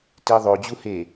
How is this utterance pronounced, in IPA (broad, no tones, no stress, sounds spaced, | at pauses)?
t i ðˤ o d͡ʑ u h e